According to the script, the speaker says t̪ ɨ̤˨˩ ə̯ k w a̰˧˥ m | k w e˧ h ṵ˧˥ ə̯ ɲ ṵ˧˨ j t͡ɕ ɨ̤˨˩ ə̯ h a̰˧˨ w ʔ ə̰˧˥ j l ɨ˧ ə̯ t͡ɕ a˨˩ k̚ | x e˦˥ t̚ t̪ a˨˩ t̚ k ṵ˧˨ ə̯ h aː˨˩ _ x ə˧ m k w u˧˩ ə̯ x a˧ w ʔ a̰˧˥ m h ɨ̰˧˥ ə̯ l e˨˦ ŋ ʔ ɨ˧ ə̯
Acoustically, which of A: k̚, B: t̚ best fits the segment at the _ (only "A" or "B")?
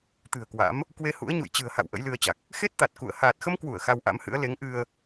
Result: B